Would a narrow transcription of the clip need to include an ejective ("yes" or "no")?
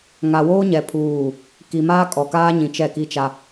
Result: yes